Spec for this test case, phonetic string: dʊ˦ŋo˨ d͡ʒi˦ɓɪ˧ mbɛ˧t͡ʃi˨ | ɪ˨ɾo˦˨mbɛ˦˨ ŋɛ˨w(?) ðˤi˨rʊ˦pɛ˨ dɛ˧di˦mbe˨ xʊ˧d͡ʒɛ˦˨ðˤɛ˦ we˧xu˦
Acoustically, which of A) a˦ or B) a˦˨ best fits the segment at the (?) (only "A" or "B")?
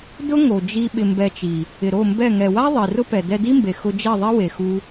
A